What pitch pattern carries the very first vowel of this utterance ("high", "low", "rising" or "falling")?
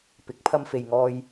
rising